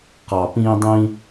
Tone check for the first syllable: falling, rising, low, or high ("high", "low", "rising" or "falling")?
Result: low